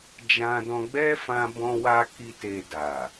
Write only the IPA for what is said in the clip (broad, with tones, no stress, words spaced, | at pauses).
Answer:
d͡ʒã˧dɔ̃˧ɡ͡bɛ˦ fã˧ bɔ̃˧wa˧ ki˧te˨ da˨